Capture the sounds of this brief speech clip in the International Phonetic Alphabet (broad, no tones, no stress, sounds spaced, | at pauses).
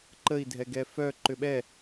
ǃ ə i̯ dʱ ɛ ɡ ɛ f œ ǃ ʏ ɓ ɛ